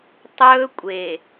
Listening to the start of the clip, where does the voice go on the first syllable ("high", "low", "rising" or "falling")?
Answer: high